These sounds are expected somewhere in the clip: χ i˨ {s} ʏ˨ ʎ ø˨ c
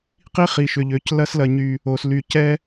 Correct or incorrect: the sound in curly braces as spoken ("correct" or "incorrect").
incorrect